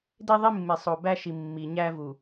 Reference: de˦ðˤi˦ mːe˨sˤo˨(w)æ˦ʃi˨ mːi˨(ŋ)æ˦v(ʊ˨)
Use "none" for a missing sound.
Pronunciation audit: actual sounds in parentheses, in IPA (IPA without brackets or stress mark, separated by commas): b, ɲ, u˨